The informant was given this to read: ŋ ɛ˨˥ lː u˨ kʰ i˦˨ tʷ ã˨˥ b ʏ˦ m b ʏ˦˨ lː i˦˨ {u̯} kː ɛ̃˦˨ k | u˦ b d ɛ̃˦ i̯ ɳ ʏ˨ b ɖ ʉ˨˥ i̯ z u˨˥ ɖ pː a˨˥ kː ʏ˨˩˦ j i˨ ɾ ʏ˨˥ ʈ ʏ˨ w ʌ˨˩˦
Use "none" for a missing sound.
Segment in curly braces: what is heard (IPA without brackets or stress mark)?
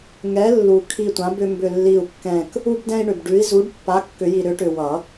u̯